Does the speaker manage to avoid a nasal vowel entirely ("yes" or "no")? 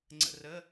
yes